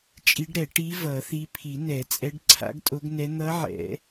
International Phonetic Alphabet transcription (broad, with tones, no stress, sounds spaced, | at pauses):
t͡ʃʼ i˧˥ ɖ ɾ ɛ˨˩˦ ʈ i˧˥ v ʌ˨˩˦ θ i˧˥ pʰ i˨˩˦ n ɛ˨˩˦ t͡sʼ ɛ˧˥ ɖ ǀʰ a̰˧˥ ɡ tʼ o˧˥ ɡ n ɛ˧˥ n̪ ʌ˧˥ ʕ ɛ̰˨˩˦